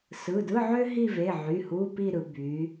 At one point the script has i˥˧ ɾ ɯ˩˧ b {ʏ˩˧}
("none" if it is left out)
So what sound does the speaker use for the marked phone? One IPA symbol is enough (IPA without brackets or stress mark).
y˩˧